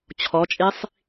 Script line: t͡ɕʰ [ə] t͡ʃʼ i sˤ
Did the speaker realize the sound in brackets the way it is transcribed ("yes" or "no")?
no